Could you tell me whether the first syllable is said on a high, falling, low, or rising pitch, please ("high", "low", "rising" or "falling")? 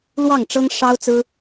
falling